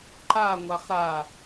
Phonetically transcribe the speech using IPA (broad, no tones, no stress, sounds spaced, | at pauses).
ǃ a ŋʷ a χ ɾ a